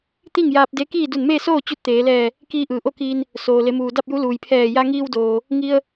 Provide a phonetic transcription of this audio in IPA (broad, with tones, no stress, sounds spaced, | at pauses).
t̪ i˥˨ ŋ j aː˧ p̚ d e˧˥ k iː˥˨ d u˧˩ n m eː˥˨ s oː˥˨ t͡ɕ u˧˥ t̚ t̪ eː˩˧ l ɛː˧˩ | k iː˧ ʔ ɯː˩ ʔ o˥˨ k iː˧ n | s oː˩ l e˩˧ m uː˩ d a˥˨ p̚ j u˧˥ l uː˩ j pʰ ɛː˧˩ j a˧ ŋ iː˧ w d oː˩ | ŋ i˧ ə̯